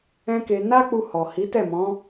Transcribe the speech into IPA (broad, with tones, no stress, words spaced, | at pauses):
ɛ̃˦ke˧ na˦k͡pu˧ hɔ˨ hi˨˦tɛ˦˨mɔ̃˨˦